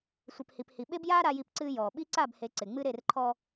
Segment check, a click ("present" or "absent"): present